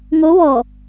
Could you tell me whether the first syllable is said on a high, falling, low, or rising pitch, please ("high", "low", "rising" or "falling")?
rising